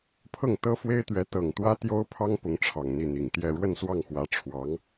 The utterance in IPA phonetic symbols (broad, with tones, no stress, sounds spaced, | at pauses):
pʰ ɤ˥˩ ŋ t̪ ɤ˥ f w e˥ ɪ̯ t̪ ɥ ɛ˧˥ t̪ ɤ˨˩ ŋ t̪ w ä˥ t̪ j o˥ ʊ̯ pʰ ɑ˥ ŋ p ʊ˧˥ ŋ ʈ͡ʂʰ ɑ˨˩ ŋ n̪ i˥˩ n̪ i˨˩ ŋ t̪ j ɛ˥˧ ɻ w ə˥˧ n s w ɑ˥˩ ŋ x w ä˧˥ ʈ͡ʂʰ w ɑ˧˥ ŋ